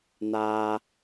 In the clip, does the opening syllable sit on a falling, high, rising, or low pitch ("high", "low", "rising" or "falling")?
high